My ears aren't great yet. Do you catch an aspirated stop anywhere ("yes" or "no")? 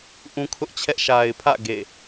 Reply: yes